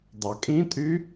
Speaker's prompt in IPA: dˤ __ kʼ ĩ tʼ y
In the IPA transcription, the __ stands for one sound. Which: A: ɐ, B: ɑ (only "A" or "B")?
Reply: B